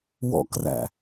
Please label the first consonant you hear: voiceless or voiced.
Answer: voiced